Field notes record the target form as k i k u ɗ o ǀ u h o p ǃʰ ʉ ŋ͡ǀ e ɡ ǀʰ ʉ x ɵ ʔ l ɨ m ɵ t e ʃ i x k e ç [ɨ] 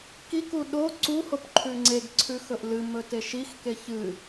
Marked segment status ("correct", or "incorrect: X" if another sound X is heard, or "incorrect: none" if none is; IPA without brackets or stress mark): correct